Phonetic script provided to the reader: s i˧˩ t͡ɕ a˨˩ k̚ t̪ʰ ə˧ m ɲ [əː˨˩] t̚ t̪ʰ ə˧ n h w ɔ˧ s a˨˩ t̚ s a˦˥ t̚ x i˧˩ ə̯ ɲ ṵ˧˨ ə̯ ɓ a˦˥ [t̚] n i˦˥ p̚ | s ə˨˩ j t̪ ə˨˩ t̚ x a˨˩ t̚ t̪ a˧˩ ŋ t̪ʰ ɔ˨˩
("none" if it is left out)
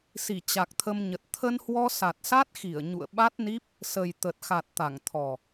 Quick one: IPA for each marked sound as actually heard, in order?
ə˨˩, t̚

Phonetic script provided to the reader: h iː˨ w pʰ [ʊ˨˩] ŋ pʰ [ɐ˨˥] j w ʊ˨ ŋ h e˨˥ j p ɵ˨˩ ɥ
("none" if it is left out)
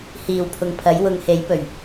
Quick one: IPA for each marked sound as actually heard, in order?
ʊ˨, ɐ˨˥

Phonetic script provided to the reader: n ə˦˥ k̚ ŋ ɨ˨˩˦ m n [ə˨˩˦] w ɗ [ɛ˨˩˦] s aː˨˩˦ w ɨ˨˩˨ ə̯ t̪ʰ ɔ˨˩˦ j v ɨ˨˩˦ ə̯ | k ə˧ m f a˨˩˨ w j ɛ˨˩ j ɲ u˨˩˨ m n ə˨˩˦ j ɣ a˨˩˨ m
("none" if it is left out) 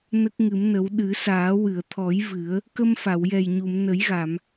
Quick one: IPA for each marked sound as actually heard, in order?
ə˨˩˦, ɨ˨˩˦

